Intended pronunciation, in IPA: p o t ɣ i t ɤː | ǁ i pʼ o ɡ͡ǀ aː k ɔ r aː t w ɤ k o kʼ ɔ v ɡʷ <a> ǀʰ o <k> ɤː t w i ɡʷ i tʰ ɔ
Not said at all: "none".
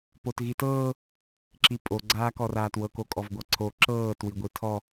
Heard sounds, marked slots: a, ǁ

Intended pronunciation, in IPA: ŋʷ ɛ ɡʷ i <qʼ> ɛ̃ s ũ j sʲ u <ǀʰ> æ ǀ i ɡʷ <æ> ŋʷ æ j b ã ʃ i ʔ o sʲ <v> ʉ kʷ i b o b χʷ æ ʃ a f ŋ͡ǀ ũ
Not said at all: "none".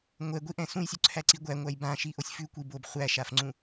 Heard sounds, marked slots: ʔ, ǀʰ, æ, f

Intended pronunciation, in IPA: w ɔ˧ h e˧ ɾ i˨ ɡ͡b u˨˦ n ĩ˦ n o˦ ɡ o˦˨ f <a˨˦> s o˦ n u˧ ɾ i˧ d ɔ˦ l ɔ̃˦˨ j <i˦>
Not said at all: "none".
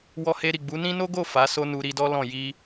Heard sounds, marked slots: a˨˦, i˧

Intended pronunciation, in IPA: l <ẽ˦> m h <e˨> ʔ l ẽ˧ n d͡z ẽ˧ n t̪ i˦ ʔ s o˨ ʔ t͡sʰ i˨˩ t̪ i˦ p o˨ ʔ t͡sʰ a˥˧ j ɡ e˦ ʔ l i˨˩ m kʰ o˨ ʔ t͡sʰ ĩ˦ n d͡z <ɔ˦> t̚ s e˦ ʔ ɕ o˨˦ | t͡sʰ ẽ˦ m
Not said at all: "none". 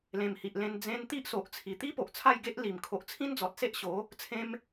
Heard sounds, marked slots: ẽ˨˩, i˨, ɔ˨

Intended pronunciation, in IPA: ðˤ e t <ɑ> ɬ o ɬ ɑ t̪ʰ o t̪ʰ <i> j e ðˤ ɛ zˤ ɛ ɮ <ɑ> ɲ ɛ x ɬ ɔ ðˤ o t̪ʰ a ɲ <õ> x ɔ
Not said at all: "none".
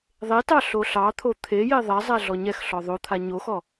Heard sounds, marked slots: ɑ, e, ɔ, o

